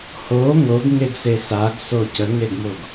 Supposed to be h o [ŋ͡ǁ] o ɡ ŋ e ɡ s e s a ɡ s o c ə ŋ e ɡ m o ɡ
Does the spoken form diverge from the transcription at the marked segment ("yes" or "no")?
yes